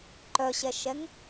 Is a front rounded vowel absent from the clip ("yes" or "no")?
no